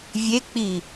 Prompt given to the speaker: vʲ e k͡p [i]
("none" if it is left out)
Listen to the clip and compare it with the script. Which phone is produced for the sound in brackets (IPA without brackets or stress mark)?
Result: i